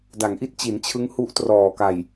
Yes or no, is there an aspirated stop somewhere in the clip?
yes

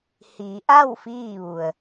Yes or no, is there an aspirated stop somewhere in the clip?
no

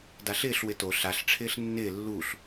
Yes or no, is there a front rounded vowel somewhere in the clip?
no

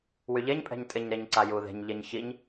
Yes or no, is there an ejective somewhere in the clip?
yes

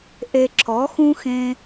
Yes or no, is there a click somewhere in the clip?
yes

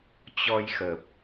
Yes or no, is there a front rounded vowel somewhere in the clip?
no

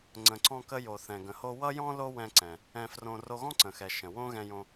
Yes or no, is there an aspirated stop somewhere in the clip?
no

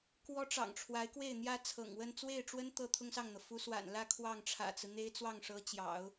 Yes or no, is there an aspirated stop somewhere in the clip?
yes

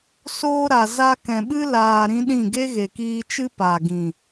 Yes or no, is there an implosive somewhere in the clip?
yes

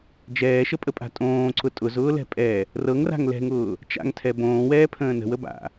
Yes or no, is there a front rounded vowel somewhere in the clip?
no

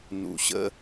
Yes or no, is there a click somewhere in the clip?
no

